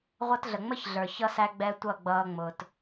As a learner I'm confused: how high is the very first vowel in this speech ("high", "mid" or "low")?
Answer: mid